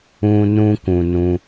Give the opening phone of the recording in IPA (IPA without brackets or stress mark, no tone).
ũ